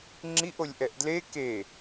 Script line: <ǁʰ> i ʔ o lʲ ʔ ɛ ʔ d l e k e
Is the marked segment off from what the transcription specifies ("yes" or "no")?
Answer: yes